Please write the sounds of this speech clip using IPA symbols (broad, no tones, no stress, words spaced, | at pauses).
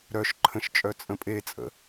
ɾœʃǃʰə̃ʃt͡ʃʼœ t͡sʼə̃pʼet͡sʼə̰